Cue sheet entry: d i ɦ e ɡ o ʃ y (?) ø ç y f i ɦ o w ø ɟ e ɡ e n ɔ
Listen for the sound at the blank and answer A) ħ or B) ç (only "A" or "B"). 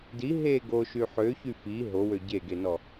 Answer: A